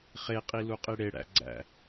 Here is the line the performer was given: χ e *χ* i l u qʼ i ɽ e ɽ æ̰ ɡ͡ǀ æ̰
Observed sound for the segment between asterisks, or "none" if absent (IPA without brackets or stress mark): qʼ